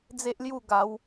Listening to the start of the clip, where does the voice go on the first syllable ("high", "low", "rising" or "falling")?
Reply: high